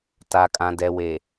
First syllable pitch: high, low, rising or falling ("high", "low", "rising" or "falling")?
low